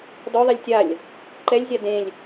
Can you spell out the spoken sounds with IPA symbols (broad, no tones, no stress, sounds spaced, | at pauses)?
d ɔ ðˤ ɛ lʲ tʲ a lʲ | ǃ ɛ lʲ zʲ a d ẽ lʲ